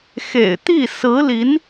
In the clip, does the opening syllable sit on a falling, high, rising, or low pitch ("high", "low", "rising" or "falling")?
low